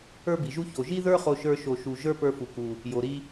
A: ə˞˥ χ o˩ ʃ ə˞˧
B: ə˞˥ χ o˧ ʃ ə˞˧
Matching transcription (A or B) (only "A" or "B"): B